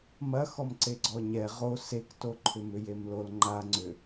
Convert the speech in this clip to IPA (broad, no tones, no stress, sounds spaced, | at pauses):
m ɐ x ɔ m ǀ e ɡ͡ǀ ɔ ɲ ɛ ʁ o s e k t o ǃʰ ʏ m ʏ j e m l o l ŋ͡ǃ a ŋ͡ǀ ʏ